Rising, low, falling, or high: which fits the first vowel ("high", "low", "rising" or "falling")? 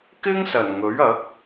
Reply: high